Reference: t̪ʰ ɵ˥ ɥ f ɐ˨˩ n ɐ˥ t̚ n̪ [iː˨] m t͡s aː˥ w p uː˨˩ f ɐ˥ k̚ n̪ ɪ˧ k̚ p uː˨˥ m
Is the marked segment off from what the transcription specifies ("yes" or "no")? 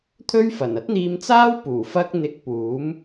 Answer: yes